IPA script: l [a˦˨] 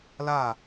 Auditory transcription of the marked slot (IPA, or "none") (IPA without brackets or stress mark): a˦˨